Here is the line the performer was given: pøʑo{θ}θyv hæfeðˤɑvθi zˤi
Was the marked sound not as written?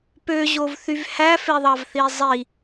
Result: yes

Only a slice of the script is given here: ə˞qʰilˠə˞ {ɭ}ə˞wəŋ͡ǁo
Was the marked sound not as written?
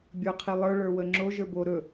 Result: no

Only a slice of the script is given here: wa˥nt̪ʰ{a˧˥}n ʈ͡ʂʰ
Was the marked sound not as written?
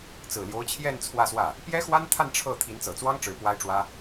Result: yes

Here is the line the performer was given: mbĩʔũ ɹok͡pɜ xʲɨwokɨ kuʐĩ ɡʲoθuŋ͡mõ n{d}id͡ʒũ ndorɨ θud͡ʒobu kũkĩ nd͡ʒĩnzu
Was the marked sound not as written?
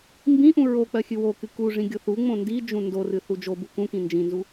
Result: no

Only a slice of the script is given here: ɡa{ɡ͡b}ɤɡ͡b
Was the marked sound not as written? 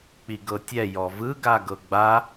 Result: yes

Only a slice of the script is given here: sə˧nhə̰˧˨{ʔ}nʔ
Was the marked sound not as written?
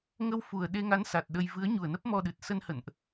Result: yes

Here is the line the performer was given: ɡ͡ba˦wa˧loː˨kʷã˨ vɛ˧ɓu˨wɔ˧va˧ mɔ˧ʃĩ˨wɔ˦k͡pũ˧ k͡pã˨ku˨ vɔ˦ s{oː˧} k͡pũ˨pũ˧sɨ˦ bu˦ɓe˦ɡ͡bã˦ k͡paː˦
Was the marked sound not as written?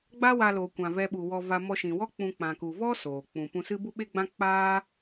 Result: yes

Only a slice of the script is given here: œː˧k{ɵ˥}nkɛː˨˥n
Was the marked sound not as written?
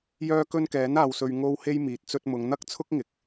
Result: yes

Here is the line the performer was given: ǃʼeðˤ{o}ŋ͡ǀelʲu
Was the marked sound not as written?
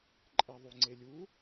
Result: yes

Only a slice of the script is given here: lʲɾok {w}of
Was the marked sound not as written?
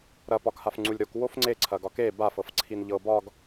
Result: no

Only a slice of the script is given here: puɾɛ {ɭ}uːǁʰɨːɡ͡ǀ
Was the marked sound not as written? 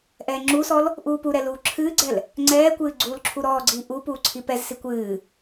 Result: yes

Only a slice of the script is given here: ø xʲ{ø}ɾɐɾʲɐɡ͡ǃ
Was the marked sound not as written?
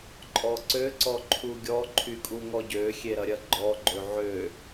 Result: yes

